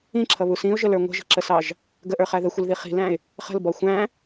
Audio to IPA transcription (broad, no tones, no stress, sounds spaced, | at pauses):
ĩ ǁʰ ʌ β u s ĩ ʊ̯ ʒ ə l ə˞ ŋʷ ə̤ ʒ ə̤ ǁ ə s ɑ ʒ | ɡ ə ʔ ə˞ χ æ ð ə xʷ ɪ l ð i χ i̤ l æ̃ ɪ̯ | χ ə̤ l b ɔ xʷ æ̃